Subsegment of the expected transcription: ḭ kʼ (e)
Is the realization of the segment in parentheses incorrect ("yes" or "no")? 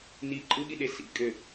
yes